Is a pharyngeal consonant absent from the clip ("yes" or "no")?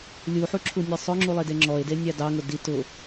no